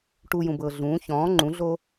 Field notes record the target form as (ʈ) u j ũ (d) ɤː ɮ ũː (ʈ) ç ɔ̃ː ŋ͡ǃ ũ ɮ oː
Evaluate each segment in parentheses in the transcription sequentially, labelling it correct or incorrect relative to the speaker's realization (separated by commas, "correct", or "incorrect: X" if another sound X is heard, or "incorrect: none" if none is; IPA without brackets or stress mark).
correct, incorrect: b, incorrect: none